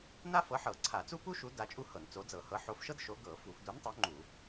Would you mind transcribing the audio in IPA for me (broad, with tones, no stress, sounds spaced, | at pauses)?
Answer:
n a˥ f ɤ˨˥ ħ ɤ˧˩˧ ǀʰ a˧˩˧ t͡s u˥ p u˥ ʃ u˨˥ d a˨˥ t͡ʃʼ u˥ h ɤ˧˩˧ n t͡s o˨˥ d͡z ɤ˧˩˧ h ɤ˨˥ ħ o˨˥ f ʃ ɤ˥ d ʃ o˨˥ ɡ ɤ˧˩˧ f u˧˩˧ f d u˨˥ n tˤ o˨˥ ŋ͡ǃ u˧˩˧